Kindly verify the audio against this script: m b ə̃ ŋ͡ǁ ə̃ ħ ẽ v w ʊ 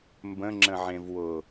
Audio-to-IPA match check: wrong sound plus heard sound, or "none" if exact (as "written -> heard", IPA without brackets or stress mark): ħ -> ʕ